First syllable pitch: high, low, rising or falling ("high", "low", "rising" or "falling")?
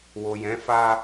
low